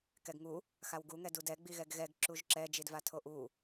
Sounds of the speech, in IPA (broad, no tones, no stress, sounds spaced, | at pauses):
k ɛ ɡ ŋ u | x a w ɡ u ŋ ɛ d u d ɛ ɡ͡b i ɣ ɛ ɡ ɣ ɛ ɡ ǁ u ʒ ǁ ɛ d͡ʒ i d v a tʰ o ʔ u